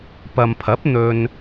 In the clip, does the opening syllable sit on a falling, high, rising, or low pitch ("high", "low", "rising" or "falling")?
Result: low